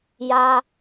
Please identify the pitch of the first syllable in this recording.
low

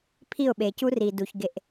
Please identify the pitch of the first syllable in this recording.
falling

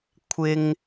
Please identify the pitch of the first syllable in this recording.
high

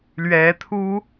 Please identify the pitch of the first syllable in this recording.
rising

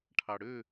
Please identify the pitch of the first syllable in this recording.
low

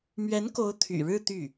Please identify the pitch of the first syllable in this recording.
rising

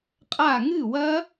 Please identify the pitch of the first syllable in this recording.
falling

